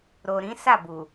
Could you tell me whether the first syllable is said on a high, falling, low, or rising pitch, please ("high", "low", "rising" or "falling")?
low